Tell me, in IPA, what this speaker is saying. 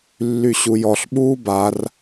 lː y ɕ u j ɔ ɬ ɓ uː b a r

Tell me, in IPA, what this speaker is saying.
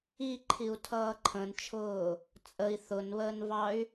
i ǃʰ i u̯ tʰ ʌː ǃʰ ə̃ n t͡ʃʰ ʊː | t͡sʼ ə i̯ θ ʊ n β əː n v ɑ y̯

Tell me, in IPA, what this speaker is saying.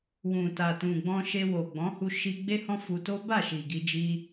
w ũ˨ t a˨ t ũ˨ ɡ͡b ɔ̃˧ ʃ e˧ w o˨ ɡ͡b ɔ̃˨˦ h u˧ ʃ i˧ ɡ͡b e˦ h ɔ̃˦ f u˧ t o˦ b a˦˨ ʃ i˨ ɡ i˧ d͡ʒ i˧

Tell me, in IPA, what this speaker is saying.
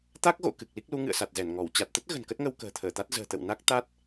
t̪ a˦˥ k̚ ɣ o̰˧˨ k ɨ˨˩ k̚ l i˦˥ k̚ l u˨˦ ŋ ɨ̰˧˨ ə̯ s a˨˩ t̚ z ɛ˧˩ n ŋ ɔ˧˩ w t͡ɕ a˨˩ t̚ t̪ ə˦˥ t̚ ɣ ə̤˨˩ n k ə˦˥ t̚ ŋ ə˧ w k ə̤ː˨˩ t̪ʰ əː˧˩ t̪ a˦˥ t̚ z ə̤ː˨˩ t̪ ə̰˧˨ w n a˦˥ k̚ t̪ a˦˥ t̚

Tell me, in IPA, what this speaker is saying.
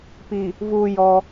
p i˨ | v uː˨ j ɔ˦

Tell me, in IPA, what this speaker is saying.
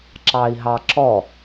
ǁ ɑ i̯ ɦ ɑ ǁ ɔ

